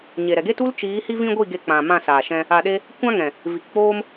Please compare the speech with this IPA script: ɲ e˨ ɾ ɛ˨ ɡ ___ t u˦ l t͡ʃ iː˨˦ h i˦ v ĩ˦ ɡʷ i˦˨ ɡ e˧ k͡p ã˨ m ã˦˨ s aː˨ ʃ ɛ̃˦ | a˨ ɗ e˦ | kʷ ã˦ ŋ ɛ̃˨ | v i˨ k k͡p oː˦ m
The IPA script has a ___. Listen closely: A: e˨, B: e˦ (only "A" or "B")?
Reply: B